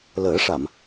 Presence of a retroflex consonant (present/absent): present